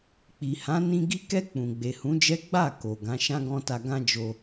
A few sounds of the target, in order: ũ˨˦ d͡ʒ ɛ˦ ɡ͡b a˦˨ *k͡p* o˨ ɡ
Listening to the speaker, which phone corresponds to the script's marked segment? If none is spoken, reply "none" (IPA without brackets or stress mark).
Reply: k